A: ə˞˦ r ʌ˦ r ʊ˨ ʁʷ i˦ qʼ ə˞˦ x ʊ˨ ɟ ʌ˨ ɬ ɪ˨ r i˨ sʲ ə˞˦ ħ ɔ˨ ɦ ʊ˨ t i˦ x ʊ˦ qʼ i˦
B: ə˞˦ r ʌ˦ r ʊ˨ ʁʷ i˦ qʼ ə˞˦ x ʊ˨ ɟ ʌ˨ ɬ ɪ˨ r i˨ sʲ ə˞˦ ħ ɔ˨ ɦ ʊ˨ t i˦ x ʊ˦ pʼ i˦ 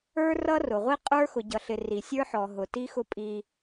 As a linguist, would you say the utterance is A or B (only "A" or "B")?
B